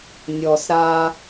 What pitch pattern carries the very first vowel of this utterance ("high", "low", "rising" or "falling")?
low